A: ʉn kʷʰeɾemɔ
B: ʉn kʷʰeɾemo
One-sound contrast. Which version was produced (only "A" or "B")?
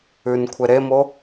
B